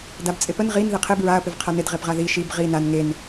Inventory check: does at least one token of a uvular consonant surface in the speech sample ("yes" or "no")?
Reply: yes